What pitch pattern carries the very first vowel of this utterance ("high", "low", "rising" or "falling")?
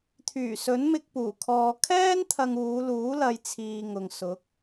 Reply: low